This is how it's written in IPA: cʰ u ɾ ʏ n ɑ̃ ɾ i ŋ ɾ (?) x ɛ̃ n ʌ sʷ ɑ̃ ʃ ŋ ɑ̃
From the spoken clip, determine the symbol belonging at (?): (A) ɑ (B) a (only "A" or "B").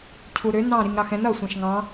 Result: A